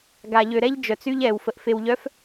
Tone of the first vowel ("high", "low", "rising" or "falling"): low